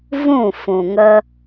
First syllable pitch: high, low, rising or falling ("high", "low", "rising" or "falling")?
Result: falling